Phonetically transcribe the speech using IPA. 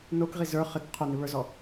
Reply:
nokʁi zə˞ χɪk qʰonɪβə˞zɔ

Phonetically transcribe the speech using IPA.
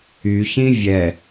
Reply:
yçĩ vʲɛ

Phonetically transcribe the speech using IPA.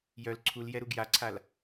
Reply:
jœl ǀʰuljɛɾuɡ jaǀʰal

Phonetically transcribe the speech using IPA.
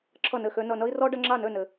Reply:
ǁʰʌ˥˩nɘ˥˩xø˦ nʌ˨nʌ˦i̯rɔ˦ ɖʌ˦ŋ͡ǁa˥˩nø˥˩nɘ˨

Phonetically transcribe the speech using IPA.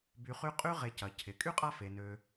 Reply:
by˨ χy˦qʼy˥ ʁe˨cɐ˩cʰɪ˩ kʼy˥qʼa˦fe˩ nø˨

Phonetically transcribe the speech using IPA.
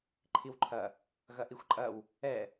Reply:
ǃʰiwǃʰɐ | ɣɐʔixʷǃʼɐw | ɛ

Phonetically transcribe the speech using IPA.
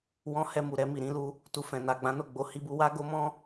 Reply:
wɔ̃˧hɛ˧ mu˨ɾɛ˧mi˨ ɾĩ˧lu˧ | tu˧fɛ̃˨ na˨ɡ͡bã˨˦ no˦˨ɡ͡bo˨˦ hi˧bu˧wa˦ ɡo˦mɔ̃˦

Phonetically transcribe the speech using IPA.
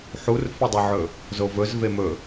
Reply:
ħurfʏdˤɵʕɵ | zovɵz vemɵ

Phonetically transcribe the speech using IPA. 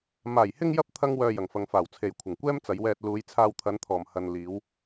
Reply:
maː˨˩jhɪ˧ŋjɐ˧p̚ t̪ʰɐ˥ŋwœː˧jɐ˨˩ŋfɐ˨˧ŋ faː˨˩wt͡sʰe˨jkʷʰɪ˨˩ŋ kʷɛː˥mt͡sɐ˨˧jwɛː˧t̚ luː˨˧j t͡sʰaː˧wt̪ʰɐ˨˧nt̪ʰɔː˨˩m hɐ˨n liː˨˧w

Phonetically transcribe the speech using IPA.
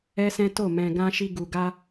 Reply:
ɛ˦sɛ̃˦to˦˨ mɛ̃˨ɡã˧ ʃi˧ɡu˨ɡa˧

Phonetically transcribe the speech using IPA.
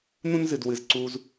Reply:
n̪ũ˥nzɨ˩dwɨ˩z ǀu˩z

